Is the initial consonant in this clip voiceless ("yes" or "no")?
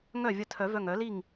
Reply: no